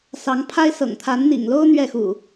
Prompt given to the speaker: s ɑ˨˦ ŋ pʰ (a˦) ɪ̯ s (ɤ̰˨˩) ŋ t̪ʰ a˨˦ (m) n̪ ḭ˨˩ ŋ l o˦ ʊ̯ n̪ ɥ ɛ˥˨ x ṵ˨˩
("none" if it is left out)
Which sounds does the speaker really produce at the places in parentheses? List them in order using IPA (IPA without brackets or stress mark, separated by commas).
a˦, ɤ̰˨˩, n